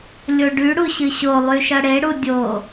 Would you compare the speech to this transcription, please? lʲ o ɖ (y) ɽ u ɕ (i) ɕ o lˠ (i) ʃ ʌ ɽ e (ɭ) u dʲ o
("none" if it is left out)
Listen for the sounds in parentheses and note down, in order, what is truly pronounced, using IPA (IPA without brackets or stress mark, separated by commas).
y, ɨ, y, ɽ